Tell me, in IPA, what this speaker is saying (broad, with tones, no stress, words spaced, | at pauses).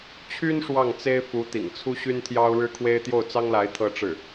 t͡ɕʰy˥n ʂwɑ˥˩ŋt͡se˥ɪ̯ fu˧˥t̪ḭ˨˩ŋt͡sʰu˥ ɕy˥nt̪ʰjɑ˥ʊ̯ ɻɻ̩˥kʰwe˥ɪ̯ t̪jo˥˩ʊ̯t͡sɑ˥ŋla˧˥ɪ̯ t̪ʰɤ˥ʈ͡ʂɻ̩˥˩